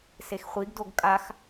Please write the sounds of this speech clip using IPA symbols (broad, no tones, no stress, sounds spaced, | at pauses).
s e x χʷ i ɡ d o ɡ kʼ a x